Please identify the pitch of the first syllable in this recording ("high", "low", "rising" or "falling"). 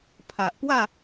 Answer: low